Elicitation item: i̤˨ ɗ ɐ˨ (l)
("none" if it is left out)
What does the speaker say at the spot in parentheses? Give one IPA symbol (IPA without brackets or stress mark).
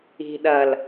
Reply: l